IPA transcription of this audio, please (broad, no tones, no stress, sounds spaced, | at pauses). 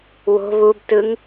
w o̤ β u b t ɯ ŋ